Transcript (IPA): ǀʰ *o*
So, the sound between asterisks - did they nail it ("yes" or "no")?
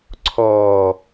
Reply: no